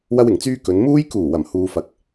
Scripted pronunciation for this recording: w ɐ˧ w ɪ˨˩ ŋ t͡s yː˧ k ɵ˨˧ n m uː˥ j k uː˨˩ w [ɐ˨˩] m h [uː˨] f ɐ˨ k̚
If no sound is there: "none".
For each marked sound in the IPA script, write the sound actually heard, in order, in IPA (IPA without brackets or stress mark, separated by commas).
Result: ɐ˨˩, uː˨